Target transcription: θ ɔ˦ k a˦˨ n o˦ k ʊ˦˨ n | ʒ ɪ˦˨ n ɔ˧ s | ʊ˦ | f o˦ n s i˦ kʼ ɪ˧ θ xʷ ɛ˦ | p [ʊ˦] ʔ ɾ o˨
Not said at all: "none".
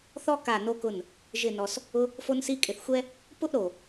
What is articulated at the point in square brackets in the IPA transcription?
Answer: ʊ˦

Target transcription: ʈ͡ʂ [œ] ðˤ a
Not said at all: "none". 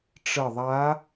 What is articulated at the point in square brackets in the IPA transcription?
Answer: ə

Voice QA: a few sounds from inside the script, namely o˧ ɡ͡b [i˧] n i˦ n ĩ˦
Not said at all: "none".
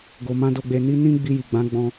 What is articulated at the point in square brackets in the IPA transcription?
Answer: e˧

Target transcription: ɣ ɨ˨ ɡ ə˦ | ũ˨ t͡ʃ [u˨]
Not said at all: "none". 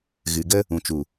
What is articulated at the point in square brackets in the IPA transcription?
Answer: u˨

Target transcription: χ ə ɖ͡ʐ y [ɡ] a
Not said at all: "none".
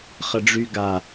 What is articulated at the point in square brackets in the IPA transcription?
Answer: ɡ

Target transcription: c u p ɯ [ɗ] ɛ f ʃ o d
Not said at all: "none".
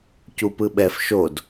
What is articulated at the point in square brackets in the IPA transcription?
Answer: ɓ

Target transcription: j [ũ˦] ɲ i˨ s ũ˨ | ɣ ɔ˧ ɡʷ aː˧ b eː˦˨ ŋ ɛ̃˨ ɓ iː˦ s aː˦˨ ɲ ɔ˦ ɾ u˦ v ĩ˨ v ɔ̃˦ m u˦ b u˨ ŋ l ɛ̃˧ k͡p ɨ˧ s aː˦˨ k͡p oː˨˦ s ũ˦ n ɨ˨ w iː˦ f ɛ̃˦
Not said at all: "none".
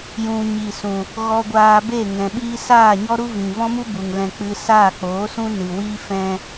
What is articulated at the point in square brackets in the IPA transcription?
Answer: ũ˨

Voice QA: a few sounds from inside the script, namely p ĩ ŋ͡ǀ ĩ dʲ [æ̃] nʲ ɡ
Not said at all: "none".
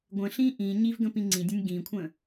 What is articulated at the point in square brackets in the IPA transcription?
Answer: ə̃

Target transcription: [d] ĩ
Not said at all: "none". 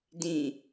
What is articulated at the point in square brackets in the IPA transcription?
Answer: d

